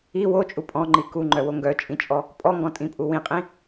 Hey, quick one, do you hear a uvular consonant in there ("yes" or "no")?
yes